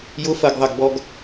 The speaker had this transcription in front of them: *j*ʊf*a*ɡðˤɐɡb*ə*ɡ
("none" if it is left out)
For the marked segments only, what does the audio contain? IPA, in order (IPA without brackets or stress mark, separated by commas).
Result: j, ɐ, ɔ